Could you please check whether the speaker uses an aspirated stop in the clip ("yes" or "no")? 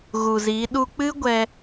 no